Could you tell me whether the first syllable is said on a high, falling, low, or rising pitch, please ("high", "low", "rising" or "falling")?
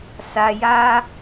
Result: low